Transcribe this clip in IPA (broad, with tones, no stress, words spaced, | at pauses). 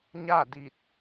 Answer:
ɲa˥˨di˧˩t̚